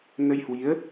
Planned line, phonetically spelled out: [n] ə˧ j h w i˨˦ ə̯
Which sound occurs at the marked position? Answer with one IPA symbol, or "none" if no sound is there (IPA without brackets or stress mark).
n